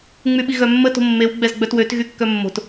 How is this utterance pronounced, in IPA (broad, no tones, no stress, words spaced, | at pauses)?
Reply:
ŋ͡myɓiɣœmːə to̤mːew ɡ͡bɛzɡ͡bœtwøt ɣykːœmːo̤t